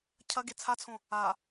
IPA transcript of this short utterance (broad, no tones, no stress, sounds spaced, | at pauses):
cʰ ɐ ɡ e t͡sʰ a t͡sʰ õ | a